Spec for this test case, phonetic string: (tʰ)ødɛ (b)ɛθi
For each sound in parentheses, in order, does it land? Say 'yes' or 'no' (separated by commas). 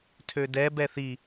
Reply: yes, yes